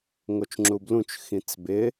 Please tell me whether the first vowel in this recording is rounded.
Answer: yes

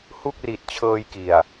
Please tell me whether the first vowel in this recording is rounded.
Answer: yes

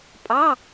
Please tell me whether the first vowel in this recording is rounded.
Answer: no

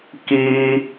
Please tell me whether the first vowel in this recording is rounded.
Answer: no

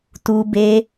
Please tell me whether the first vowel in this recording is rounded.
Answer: yes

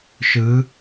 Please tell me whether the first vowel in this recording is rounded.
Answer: no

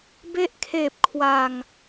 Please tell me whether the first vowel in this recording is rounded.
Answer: no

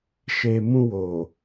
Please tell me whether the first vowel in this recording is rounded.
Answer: no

